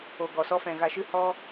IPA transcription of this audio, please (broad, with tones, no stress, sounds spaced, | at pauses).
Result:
o˨ ɡ ɔ˨ s ɔ˧ f ɛ̃˨ ɣ a˨ ʃ ɨ˧ h ɔ˧